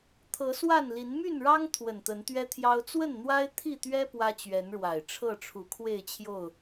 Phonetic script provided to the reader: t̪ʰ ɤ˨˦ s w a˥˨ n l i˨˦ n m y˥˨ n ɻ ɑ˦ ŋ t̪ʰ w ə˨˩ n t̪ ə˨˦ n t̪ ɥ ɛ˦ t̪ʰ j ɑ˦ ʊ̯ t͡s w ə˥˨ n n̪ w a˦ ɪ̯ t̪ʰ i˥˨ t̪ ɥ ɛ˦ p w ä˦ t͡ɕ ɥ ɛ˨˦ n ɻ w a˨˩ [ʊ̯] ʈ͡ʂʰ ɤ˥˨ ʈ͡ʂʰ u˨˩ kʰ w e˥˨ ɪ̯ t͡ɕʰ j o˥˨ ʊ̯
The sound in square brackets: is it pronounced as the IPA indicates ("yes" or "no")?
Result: no